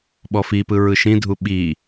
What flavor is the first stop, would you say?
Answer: implosive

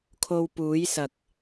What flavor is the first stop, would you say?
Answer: aspirated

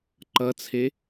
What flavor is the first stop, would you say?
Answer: click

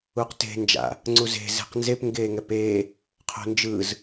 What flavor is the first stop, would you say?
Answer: plain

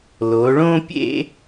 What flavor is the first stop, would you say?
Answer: plain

